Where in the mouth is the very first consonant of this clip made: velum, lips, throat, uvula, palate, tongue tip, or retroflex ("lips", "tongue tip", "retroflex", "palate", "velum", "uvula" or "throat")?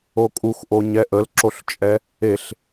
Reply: velum